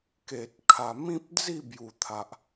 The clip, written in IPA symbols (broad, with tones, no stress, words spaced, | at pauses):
ke˨t̚ kʰa˨˩mĩ˦p̚d͡zi˥˧ bju˨˩t̪ʰa˨ʔ